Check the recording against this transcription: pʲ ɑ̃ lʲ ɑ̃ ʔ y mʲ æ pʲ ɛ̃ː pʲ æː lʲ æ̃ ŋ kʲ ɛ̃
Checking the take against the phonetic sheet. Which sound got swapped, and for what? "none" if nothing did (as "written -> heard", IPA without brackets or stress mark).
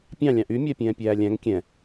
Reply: none